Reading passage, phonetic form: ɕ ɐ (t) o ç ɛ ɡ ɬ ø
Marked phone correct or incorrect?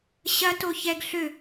correct